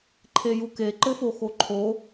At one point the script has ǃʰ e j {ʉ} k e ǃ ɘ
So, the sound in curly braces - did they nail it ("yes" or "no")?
no